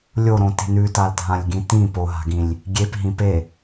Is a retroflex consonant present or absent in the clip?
absent